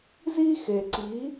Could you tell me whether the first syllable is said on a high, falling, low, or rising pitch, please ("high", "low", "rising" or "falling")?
high